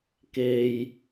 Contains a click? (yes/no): no